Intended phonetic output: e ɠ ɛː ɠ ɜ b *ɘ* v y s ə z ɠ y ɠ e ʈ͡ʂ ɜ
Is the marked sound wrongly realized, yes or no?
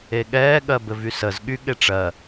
no